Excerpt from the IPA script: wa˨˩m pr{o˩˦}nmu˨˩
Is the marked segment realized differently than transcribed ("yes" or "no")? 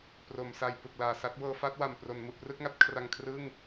no